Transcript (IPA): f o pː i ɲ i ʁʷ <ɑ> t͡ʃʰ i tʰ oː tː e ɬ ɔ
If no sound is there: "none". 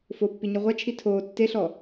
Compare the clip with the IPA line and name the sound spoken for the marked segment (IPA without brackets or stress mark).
a